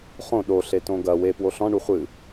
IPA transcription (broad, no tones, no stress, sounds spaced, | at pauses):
χ õ ɗ o ɬ e t õ ɡ ɐ w e p w o ɬ ɔ̃ ɳ u χʷ ɨ